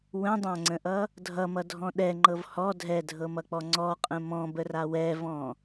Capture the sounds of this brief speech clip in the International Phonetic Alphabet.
w ə̃ dˤ ã ŋ͡ǀ ə̃ ʔ ʌ | dʱ ʌ m ʌ dʱ ɔ̃ ɗ ɛ ŋ͡ǃ ɤ v h ɔ dʱ ɛ dʱ ɤ m ʌ k͡p ɔ ŋ͡ǀ ɔ qʼ ə̃ m ɔ̃ b ə r a w ɛ v ɔ̃

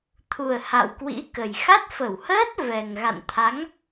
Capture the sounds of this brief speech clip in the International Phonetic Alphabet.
t̪ʰ u˨˩ ə̯ h a̰˧˨ w k w ḭ˧˥ k ə˨˩ j x a˦˥ t̚ f ə˧˩ w h əː˦˥ t̚ v ɛ˨˩ ŋ ɣ a̰˧˨ n t̪ʰ a˨˦ ŋ

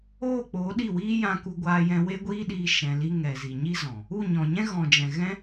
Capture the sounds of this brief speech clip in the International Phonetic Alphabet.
oː˦˨ k͡p oː˨˦ ɗ i˦˨ w iː˦ j ã˦ k u˦ ɡʷ aː˦ j ɛ̃˦ w e˦ ɡʷ iː˦ ɗ iː˧ ʃ ɛ̃˧ l i˦ ŋ ɛ˨ z i˨ ɲ i˦ z ɔ̃˨ | u˦˨ ɲ ɔ̃˨ ɲ ɛ̃˦ ɣ ɔ̃˨ d͡ʒ ɛ̃˨ ɣ ɛ̃˦

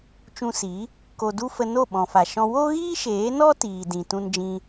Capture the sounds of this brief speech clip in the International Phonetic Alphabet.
t͡ʃ ũ˧ s i˨˦ | k o˧ d u˦ f ə˧ n o˦˨ ɓ ɔ̃˨ f a˨ ʃ ɔ̃˧ w o˦ ɣ iː˦ ʃ eː˨˦ n ɔ˦ t iː˨ d ĩ˨ t ũ˧ n d͡ʒ ĩ˧

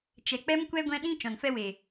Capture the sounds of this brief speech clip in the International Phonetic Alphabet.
t͡ʃ ɛ˨ k͡p ɛ˦ m kʷ ɛ˦ ɡʷ ɛ̃˦ ɗ ĩ˧ t͡ʃ ɔ̃˨ n f ɛ˧ w e˨

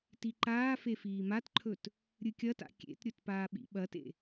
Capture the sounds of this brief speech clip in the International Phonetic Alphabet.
t i ǃ aː f e f iː m a t ǃʰ ɵ t | ɾʲ ɨ kʲ ɐ t a̰ kʲ ḛ t ɾʲ ɵ t p aː ɓ ḭ ɓ ɐ t ḛ

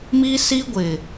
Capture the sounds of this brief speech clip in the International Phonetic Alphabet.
m iː˦ s iː˦ ɡʷ ɪ˨

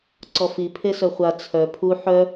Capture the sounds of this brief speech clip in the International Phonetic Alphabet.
ǀ ɔ f i pʰ e s œ χʷ a t͡sʰ œ pʰ u ħ œ

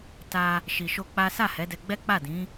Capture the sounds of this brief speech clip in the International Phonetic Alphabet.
t a˧ | ʃ i˨ ʃ o˧ k͡p a˦ s a˦˨ h ɛ˨˦ d ɛ˧ ɡ͡b ɛ˦ k͡p a˦˨ d ĩ˨˦

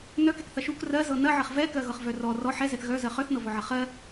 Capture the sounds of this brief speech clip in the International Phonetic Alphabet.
n œ k ɛ k θ ɐ ʃ u k r ɜ z ɤ n ɐ ʕ ɐ χ v ɛ k ɜ ɣ ɤ χ v œ r ɔ r ɔ ħ ɛ z ɛ θ ɣ œ z ɜ χ œ θ n ɤ v ɔ ʕ ɐ χ ɜ

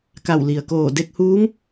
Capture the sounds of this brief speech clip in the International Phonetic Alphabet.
k a˧˩ w l i˩ ə̯ k oː˧˩ d e˧ k̚ h uː˧˥ ŋ

